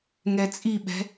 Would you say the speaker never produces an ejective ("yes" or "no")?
no